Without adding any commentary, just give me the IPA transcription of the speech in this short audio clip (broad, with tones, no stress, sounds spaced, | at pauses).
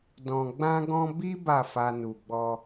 d ɔ̃˨ ɡ͡b ã˧ ɡ ɔ̃˧ b i˦ b a˦˨ f a˧ n u˨ ɡ͡b ɔ˧